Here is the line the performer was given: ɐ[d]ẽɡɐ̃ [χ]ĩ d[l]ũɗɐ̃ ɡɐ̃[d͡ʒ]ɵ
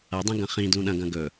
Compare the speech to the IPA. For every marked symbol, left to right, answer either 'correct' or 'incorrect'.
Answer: incorrect, correct, correct, incorrect

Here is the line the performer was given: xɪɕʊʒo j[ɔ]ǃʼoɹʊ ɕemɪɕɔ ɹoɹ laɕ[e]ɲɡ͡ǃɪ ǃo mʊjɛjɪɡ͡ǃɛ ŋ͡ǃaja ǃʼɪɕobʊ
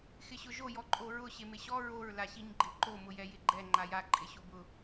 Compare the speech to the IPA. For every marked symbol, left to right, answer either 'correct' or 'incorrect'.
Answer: correct, incorrect

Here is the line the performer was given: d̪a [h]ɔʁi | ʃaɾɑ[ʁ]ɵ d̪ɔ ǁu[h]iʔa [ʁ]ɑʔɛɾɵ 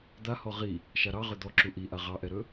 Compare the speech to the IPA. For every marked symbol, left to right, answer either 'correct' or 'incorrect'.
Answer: correct, correct, incorrect, correct

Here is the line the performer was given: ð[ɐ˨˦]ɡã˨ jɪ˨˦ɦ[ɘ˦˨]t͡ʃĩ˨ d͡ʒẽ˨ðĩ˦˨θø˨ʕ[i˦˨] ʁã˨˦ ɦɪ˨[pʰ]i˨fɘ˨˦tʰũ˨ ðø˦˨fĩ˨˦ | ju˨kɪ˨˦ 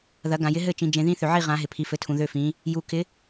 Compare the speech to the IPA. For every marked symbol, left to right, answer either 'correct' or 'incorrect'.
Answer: correct, correct, correct, correct

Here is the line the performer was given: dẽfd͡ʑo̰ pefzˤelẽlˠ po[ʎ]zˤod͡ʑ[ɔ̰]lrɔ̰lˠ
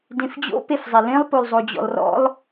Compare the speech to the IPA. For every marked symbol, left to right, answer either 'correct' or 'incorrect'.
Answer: incorrect, correct

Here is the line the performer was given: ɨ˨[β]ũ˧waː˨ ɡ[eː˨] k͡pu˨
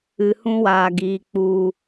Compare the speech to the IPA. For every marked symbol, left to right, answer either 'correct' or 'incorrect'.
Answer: incorrect, incorrect

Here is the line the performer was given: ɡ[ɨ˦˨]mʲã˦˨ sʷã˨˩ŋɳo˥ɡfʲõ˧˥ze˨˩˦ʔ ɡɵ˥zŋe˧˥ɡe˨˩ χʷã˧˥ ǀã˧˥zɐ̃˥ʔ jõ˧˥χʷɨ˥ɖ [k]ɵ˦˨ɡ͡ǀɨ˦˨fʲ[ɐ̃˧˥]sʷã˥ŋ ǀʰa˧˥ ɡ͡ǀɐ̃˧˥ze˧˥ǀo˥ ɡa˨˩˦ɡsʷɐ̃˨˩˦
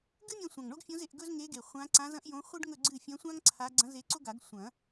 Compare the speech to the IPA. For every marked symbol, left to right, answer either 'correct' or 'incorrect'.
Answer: incorrect, incorrect, correct

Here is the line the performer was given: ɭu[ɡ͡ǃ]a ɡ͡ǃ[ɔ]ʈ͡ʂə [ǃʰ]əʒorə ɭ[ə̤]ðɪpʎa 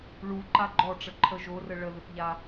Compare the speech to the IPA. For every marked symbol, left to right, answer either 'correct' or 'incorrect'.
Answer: incorrect, correct, correct, incorrect

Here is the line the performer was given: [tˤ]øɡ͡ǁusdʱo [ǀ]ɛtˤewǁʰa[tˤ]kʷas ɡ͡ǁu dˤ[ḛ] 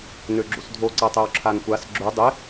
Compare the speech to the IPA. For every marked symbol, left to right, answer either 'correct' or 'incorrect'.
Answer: incorrect, correct, incorrect, incorrect

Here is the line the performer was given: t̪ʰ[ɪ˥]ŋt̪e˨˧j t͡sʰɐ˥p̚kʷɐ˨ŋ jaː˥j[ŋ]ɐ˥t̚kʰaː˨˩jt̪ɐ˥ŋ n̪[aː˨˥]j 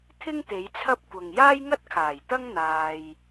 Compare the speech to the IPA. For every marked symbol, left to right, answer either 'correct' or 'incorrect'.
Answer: correct, correct, incorrect

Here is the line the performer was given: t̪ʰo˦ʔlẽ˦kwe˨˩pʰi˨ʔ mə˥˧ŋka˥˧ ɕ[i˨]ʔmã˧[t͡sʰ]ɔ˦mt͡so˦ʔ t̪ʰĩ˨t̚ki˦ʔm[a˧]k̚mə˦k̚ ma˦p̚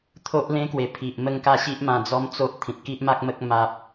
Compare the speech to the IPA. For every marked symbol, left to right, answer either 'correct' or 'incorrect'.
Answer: incorrect, incorrect, incorrect

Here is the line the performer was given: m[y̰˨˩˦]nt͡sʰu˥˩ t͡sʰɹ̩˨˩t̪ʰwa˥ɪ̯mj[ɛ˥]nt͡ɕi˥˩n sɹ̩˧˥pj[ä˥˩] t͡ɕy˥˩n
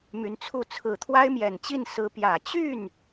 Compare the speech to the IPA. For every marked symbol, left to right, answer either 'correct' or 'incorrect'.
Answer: incorrect, incorrect, incorrect

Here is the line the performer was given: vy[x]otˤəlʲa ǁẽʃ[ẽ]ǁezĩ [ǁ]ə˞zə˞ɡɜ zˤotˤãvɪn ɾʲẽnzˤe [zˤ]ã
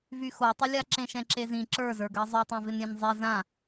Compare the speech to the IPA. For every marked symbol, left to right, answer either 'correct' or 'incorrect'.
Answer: correct, incorrect, correct, incorrect

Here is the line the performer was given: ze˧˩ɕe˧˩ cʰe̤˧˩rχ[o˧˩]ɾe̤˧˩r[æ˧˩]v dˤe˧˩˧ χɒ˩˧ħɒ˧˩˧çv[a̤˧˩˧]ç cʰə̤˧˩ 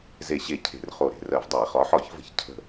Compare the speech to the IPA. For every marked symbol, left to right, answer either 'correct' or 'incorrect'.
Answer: correct, incorrect, incorrect

